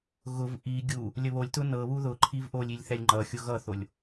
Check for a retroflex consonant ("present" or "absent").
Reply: absent